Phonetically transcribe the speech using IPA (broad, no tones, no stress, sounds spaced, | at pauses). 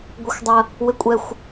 ɡʷ ɪ xʷ dˤ ɐ | w ɪ kʷʼ ɛ xʷ